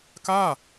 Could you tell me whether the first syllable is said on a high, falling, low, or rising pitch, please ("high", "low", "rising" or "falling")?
falling